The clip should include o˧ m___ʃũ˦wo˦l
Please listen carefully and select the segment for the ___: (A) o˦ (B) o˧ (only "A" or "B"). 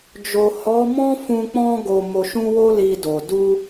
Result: B